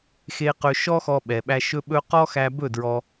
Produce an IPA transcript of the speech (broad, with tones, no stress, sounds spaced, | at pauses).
x e˧ q ɵ˧ ʃ ɔ˦ x ɔ˧ ɓ ɛ˨ ɓ æ˧ ʃ ɵ˧ ɓ ɵ˧ q ɔ˦ x æ˧ b ɵ˦˨ d ɹ ɔ˧